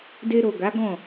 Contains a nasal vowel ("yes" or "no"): yes